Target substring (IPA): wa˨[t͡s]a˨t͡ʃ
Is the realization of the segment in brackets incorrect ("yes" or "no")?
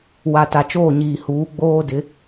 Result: yes